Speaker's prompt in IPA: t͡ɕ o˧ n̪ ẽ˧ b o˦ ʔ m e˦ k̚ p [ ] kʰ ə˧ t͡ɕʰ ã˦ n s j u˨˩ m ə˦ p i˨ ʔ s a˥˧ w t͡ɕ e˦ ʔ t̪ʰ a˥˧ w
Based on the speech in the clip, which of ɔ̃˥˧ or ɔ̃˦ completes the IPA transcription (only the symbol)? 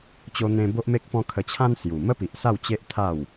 ɔ̃˦